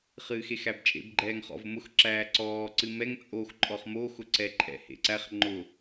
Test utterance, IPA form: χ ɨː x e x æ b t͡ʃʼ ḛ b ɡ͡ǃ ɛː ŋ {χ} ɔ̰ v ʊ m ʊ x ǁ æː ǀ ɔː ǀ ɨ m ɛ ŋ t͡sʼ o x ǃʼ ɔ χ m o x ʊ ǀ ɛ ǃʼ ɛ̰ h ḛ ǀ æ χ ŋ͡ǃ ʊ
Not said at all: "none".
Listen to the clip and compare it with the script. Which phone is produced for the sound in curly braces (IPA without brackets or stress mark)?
χ